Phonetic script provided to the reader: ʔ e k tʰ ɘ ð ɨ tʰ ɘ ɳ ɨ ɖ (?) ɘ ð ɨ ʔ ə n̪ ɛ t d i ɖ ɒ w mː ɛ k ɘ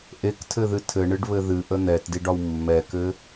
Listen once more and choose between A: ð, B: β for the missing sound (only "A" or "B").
B